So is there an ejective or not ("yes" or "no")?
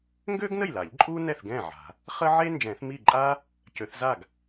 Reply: yes